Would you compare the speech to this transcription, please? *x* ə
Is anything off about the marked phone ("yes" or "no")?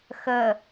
no